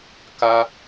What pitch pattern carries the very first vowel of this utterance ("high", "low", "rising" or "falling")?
high